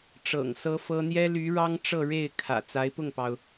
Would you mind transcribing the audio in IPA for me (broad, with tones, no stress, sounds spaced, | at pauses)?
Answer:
ʈ͡ʂ ɤ̰˨˩ ŋ s ɤ˥ f ɤ˥ n̪ j ɛ˥ l y˧˥ ɻ ɑ˥ ŋ ʈ͡ʂ ɤ˥˧ ɻ e˥˩ ɪ̯ kʰ ä̰˨˩ t͡s a˧˥ ɪ̯ p ʊ˥˩ ŋ p ɑ˩ ʊ̯